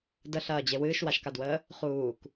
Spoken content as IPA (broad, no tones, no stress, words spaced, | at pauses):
dəɬɐːd͡ʑe wɨːʃwaʃkadwəː | χuːk